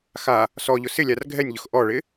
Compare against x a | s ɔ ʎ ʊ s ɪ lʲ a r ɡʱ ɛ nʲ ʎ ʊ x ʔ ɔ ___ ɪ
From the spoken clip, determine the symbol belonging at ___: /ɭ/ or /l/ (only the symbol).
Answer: ɭ